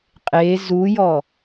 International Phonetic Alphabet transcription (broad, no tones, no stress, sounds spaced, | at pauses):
qʼ e z u j ɔ